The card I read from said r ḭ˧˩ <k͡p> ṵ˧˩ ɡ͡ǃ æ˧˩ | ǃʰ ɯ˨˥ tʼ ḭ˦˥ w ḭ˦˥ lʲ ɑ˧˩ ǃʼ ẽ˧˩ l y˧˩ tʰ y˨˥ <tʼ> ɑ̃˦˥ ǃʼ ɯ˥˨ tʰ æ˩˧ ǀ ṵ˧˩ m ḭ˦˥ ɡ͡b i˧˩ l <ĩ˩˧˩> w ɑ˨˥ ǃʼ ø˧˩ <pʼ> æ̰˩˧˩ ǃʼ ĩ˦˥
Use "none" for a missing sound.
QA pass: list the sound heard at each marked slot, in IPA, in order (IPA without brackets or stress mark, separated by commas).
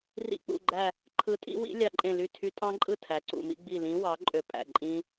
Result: k͡p, tʼ, ĩ˨˥, pʼ